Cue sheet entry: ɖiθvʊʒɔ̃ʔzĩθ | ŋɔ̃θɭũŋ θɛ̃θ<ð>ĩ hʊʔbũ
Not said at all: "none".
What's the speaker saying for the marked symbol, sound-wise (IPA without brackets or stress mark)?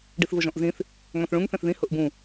ð